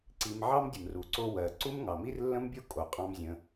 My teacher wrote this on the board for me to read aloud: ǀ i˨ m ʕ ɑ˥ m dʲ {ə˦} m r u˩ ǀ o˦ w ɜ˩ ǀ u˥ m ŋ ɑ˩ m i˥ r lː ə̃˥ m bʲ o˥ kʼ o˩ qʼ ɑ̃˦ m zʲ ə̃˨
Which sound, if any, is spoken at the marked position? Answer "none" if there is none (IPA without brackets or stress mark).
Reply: ə˩